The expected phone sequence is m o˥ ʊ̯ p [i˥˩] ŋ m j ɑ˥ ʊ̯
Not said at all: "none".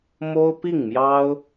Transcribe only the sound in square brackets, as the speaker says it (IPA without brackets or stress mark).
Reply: i˥˩